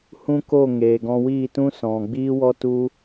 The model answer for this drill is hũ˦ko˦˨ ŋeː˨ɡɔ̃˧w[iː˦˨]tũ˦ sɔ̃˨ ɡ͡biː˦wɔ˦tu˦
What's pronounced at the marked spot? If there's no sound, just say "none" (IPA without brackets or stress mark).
iː˦˨